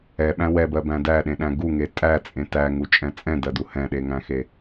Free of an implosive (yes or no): no